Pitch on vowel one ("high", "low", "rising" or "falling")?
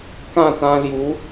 falling